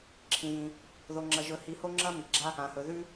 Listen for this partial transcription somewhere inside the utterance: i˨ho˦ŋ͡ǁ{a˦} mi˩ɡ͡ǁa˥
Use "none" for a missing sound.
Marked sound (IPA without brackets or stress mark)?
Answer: ɐ˦